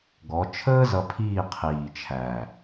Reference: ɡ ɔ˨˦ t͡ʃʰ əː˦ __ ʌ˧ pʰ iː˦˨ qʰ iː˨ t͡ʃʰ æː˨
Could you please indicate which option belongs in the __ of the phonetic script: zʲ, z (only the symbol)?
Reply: z